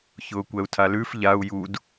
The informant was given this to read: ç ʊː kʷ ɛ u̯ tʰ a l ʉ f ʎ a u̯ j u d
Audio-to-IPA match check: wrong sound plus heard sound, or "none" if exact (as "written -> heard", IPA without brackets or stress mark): none